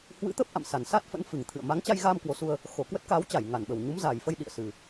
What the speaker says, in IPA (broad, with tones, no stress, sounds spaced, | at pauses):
h w ɨ̰˧˥ t̪ ə˦˥ p̚ ʔ a̰˧˨ m s a˨˩ n s a˦˥ t̚ f ə̰˧˥ n f ɨ˨˩ ŋ t̪ʰ ɨ̰˧˨ ə̯ m a˨˦ ŋ t͡ɕ a˧ j ɣ aː˧ m k w o˨˦ s u˧ ə̯ | x o˧˩ k w ə˦˥ t̚ k aː˨˦ w t͡ɕ a˧˩ j ŋ a˧˩ n ɓ ə˨˩ w ɲ u˨˦ m z a˨˩ j f ə˧ j ɗ ḭ˧˨ ə̯ s ɨ˨˩